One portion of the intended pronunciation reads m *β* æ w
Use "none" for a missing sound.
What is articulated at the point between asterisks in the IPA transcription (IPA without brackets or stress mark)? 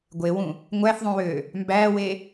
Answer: b